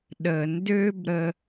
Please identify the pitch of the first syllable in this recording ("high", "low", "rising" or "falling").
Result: low